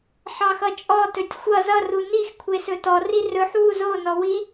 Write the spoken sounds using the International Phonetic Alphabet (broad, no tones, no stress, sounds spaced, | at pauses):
ħ ɑ x ʌ t͡ʃʼ ɔ t ɵ tʲ xʷ ʌ z ʌ r u n i x kʷʰ e s ɵ t ɔ r i r ɵ ħ w u z o n ɔ w i